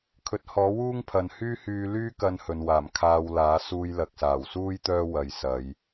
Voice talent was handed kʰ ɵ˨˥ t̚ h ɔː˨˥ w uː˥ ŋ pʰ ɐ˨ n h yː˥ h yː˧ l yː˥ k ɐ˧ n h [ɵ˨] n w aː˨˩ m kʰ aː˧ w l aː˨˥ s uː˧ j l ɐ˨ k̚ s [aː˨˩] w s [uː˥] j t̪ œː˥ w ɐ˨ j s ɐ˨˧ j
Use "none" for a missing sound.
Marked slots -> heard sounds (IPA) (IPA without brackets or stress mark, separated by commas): ɵ˨, aː˨˩, uː˥